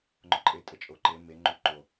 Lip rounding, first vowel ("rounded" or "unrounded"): rounded